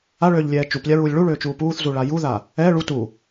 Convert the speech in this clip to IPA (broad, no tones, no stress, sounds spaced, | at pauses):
a ɭ øː ʎ lʲ ɛː t͡ʃ u p lʲ a ɹ uː lʲ ɭ u ɭ øː t͡ʃ uː p uː θ z u ɭ a j u ð a | ɛ ɭ u t u